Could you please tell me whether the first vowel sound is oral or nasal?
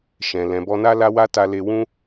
nasal